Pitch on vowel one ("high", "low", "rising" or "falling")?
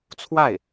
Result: falling